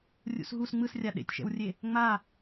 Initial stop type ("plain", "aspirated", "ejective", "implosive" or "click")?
implosive